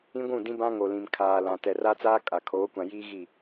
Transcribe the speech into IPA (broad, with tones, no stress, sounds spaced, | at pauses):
ĩ˦ ɡʷ ũ˦˨ d ĩ˦ b ã˦ ŋ o˨ l ĩ˨ m kʰ aː˨ l ã˨ t ɛ˨ r a˦ t͡s aː˦ kʼ a˨ kʰ oː˨˦ kʷ ã˨ j iː˦ ɣ i˦˨